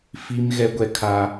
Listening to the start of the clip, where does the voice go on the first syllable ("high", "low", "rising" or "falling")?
high